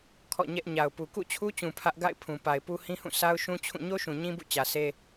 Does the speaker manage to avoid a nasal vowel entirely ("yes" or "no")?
no